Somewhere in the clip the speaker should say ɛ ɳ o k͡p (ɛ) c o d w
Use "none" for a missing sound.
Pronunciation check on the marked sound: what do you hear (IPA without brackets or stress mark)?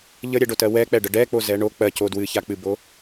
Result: ɜ